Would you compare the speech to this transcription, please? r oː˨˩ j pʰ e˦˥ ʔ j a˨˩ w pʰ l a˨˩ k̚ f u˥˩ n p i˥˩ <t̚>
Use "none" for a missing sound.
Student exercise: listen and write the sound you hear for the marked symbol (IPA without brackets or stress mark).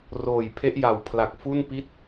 t̚